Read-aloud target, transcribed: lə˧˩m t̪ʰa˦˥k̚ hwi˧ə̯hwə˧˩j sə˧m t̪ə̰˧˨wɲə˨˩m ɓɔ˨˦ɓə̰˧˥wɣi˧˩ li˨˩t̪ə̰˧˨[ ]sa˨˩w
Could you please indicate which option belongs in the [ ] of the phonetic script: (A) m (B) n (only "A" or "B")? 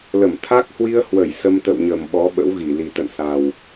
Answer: B